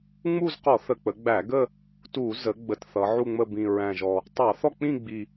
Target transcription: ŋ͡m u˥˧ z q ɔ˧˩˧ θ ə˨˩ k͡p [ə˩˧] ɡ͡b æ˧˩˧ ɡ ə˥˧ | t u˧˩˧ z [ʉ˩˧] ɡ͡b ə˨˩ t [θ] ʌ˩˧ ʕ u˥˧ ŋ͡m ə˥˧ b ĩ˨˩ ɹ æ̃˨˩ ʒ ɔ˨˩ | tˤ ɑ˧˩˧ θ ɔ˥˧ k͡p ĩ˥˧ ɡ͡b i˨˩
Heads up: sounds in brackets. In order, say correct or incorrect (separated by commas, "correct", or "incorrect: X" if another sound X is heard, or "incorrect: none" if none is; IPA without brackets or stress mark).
correct, incorrect: ə˩˧, correct